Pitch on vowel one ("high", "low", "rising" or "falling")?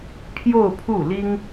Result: falling